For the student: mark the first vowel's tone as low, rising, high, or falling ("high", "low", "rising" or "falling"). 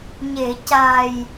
low